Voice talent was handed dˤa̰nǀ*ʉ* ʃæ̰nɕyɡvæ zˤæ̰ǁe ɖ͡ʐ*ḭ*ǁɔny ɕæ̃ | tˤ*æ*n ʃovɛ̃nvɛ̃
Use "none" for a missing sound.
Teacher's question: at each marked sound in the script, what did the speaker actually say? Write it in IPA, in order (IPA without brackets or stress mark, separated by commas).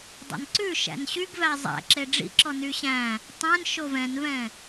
ʉ, ḭ, æ̃